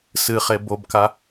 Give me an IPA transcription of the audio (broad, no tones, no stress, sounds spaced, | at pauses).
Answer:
s ɨ χ e b o b k a